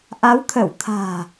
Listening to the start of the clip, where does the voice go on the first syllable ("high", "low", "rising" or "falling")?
rising